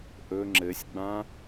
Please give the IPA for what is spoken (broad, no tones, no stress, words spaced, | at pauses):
ʔɵ ŋ͡ǁɘsʲɡ͡bã